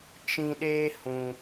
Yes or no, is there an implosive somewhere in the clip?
yes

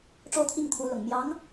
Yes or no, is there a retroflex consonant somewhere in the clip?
yes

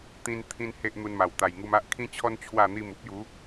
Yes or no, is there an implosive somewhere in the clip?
no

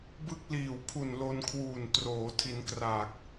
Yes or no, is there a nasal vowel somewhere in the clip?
no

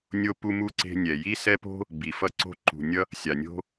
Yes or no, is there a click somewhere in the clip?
yes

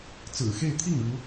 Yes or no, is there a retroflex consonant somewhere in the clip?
yes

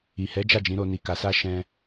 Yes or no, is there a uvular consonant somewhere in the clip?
no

